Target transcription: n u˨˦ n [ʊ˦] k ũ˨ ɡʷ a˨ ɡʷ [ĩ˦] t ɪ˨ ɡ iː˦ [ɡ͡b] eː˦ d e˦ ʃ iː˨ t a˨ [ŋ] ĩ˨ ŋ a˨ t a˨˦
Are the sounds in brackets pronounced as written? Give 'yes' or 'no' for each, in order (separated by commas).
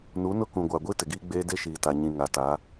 yes, no, yes, no